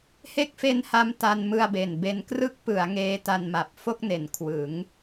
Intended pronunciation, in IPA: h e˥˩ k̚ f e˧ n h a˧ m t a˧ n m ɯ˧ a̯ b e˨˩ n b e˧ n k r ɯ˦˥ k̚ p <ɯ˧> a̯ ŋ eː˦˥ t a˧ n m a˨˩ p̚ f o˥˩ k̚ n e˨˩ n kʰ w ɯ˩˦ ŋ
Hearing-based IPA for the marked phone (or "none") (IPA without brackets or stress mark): ɯ˩˦